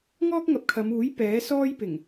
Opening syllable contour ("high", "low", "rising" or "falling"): high